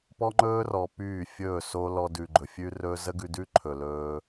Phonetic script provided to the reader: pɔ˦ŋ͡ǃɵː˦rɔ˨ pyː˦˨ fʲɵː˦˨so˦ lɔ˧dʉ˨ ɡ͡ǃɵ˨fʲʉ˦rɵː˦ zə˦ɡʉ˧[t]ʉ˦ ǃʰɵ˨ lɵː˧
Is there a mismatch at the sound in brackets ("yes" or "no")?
yes